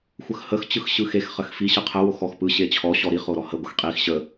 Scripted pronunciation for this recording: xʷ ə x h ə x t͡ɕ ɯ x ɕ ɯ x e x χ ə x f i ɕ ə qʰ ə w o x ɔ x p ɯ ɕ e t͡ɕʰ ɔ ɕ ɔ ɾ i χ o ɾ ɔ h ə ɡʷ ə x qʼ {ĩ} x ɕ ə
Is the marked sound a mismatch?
yes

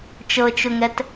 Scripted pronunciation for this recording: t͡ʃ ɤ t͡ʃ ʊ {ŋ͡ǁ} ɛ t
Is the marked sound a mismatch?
yes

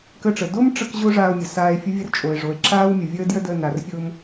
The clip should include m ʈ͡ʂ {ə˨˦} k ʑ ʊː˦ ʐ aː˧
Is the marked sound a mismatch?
yes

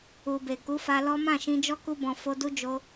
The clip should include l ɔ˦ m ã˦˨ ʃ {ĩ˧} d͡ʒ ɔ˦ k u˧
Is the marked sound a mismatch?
no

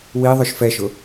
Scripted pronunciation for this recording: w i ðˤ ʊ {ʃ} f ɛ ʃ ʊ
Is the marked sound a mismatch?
no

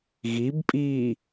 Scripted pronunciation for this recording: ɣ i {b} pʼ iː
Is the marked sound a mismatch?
no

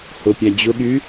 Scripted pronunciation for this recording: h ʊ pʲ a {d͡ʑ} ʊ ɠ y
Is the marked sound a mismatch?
no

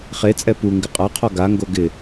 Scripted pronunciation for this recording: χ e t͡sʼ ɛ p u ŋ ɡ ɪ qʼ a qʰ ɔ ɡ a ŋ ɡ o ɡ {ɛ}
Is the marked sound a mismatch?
yes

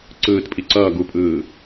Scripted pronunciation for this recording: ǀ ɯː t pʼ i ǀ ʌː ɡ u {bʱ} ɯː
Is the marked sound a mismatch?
yes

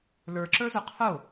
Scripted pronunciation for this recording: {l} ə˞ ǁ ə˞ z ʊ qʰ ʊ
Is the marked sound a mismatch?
no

